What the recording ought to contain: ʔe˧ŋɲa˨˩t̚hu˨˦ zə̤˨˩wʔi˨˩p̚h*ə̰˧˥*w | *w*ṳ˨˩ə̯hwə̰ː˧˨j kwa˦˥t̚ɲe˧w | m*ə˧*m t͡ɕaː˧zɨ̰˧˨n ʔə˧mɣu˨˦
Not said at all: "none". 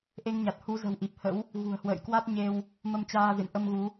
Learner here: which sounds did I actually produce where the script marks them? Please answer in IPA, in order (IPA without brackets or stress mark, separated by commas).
ə̰˧˥, ɣ, ə˧